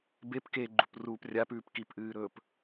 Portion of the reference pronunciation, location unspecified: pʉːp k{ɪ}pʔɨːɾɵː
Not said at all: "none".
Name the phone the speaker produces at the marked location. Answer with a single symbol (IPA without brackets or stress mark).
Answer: i